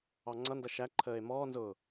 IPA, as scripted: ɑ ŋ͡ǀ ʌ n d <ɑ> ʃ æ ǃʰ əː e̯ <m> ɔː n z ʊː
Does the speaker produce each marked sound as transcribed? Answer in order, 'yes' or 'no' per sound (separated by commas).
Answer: no, yes